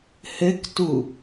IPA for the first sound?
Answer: h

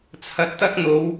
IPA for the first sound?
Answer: t͡sʰ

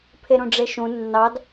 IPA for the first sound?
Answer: pʰ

